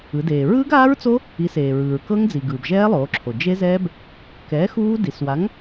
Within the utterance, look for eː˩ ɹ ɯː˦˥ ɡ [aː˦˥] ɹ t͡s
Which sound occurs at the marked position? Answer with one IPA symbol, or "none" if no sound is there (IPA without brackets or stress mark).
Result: aː˦˥